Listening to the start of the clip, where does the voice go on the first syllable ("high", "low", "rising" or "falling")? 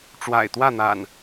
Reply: low